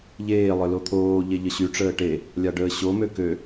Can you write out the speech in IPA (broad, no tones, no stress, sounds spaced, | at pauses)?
ʎ eː lˠ œ l o t̪ʰ oː ʎ e ʎ ə ɕ y ʈ͡ʂ əː ʈ e | lʲ a ɖ əː ɕ o m ø k ø